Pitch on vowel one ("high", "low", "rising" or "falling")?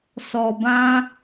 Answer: low